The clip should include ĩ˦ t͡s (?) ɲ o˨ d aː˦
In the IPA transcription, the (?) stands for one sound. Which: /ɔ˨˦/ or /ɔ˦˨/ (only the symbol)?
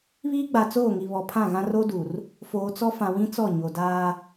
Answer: ɔ˦˨